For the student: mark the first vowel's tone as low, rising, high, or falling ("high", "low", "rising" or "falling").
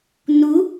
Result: rising